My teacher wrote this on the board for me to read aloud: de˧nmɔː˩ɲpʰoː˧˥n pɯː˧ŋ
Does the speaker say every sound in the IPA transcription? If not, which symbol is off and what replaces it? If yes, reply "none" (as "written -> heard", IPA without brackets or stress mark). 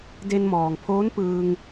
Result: ɲ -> ŋ